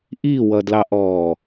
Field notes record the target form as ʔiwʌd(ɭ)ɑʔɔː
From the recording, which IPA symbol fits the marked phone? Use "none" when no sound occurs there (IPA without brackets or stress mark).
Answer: l